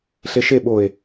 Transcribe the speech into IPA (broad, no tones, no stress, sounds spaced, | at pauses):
ɬ e ʃ e ɓ o e̯